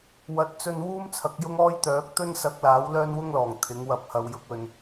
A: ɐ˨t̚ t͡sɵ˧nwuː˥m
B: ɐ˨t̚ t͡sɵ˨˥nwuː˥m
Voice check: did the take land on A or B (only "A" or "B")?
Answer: A